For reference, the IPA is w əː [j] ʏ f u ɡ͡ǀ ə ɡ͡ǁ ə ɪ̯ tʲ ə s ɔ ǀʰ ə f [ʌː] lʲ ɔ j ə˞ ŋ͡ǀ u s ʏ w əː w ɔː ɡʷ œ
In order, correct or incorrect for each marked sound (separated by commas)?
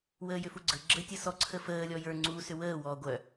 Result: correct, incorrect